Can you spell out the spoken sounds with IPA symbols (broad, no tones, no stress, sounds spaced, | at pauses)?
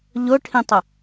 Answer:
ʎ ʊ ʈʰ ĩ tˤ ə